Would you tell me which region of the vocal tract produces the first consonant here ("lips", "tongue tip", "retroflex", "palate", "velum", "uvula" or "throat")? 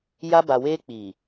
palate